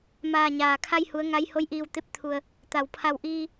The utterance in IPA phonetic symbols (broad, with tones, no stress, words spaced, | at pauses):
maː˧˩ɲaː˩kʰa˧jhu˩˧ə̯ ŋa˧˥j ho˧˥jʔiː˧˩wt̪e˧p̚ t̪ʰu˩ə̯ | t̪a˩wpʰa˧˩wʔiː˧